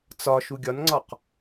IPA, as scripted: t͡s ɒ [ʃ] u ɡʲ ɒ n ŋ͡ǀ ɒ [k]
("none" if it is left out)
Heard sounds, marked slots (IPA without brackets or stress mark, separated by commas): ʃ, q